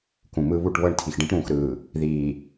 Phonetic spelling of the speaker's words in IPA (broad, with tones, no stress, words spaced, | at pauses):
kũ˨mɯ˦ βu˦˨ʈβɤ˦˨ɳ tʰi˨xɖĩ˦ʈɾũː˨xɾɯː˨ | ðiː˨